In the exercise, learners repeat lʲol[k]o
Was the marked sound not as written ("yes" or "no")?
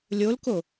no